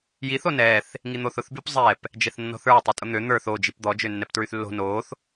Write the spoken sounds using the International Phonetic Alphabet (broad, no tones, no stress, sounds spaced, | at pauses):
j i θ o n ɛ θ | ŋ i n̪ o θ ʊ θ b y p zˤ ɛ p | d͡ʒ ɛ θ nː ɔ̤ θ ə˞ tˤ i tʼ ʊ n̪ ø n̪ ə˞ θ o d͡ʒ i p d̪ ɔ d͡ʒ ø nː ɛ p t ɹ y θ lː o̤ n o θ